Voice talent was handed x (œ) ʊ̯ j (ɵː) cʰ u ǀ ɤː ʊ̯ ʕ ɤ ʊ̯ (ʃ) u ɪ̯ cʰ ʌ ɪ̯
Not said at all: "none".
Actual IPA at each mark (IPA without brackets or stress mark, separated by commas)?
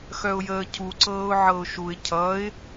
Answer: œ, əː, ʃ